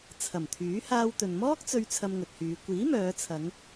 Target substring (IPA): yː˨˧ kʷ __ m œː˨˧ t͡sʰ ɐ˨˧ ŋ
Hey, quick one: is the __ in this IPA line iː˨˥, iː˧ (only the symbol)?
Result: iː˨˥